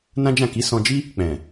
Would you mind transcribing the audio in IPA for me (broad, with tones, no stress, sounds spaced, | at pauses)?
n ã˦ d͡ʒ ã˦˨ k i˨˦ s ɔ̃˧ d͡ʒ i˦ | k͡p ɛ̃˨